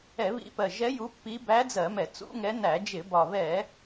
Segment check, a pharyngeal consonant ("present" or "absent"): absent